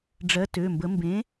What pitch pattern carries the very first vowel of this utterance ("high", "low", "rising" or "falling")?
rising